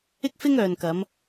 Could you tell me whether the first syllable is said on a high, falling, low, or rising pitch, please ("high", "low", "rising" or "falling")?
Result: high